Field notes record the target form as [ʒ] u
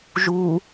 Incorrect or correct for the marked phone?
correct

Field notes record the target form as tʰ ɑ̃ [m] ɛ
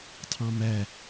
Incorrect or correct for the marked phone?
correct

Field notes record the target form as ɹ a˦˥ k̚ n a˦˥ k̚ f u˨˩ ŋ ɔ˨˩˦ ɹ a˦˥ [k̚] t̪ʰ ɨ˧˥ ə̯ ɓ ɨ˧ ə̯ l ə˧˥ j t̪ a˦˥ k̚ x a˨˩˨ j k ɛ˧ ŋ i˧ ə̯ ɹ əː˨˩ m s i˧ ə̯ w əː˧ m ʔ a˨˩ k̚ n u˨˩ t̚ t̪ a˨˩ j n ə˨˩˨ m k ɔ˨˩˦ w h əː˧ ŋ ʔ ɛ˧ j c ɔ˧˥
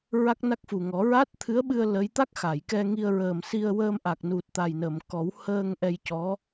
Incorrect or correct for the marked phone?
incorrect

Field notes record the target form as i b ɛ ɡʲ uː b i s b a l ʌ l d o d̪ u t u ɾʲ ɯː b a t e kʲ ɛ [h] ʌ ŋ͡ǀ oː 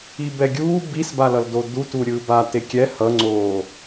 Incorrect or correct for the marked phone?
correct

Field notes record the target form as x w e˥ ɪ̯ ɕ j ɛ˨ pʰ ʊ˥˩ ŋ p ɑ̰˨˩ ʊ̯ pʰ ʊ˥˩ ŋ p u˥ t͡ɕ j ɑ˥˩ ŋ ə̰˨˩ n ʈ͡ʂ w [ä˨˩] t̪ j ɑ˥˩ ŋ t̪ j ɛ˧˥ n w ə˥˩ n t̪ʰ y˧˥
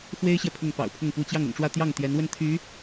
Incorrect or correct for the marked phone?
incorrect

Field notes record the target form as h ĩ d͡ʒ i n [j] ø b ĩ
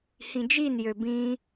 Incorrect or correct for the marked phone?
correct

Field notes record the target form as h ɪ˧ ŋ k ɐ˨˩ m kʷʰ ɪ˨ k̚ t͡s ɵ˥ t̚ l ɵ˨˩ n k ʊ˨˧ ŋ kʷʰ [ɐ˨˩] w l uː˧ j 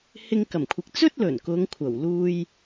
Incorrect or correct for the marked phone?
correct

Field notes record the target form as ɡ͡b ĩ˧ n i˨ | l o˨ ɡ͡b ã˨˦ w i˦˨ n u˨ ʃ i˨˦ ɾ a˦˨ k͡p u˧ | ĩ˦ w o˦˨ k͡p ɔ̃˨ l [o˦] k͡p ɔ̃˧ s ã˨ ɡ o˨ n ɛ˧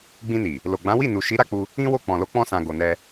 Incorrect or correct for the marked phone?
incorrect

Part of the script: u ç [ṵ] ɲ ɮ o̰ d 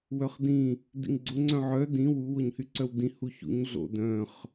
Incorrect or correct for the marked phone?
correct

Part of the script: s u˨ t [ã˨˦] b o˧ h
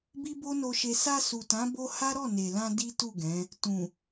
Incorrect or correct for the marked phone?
correct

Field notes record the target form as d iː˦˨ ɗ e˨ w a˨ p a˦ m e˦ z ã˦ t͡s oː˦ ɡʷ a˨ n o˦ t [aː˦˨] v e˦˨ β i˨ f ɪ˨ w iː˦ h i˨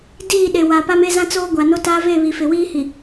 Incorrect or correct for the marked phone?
incorrect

